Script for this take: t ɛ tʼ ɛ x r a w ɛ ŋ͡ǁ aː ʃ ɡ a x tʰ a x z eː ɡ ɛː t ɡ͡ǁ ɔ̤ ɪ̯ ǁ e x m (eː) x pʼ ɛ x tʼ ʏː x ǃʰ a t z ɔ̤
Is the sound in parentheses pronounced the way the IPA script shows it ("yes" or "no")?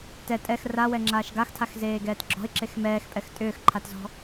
no